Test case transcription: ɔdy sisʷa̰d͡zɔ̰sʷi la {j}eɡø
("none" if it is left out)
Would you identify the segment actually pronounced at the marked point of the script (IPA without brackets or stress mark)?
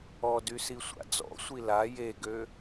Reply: j